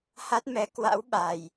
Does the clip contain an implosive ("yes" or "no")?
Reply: yes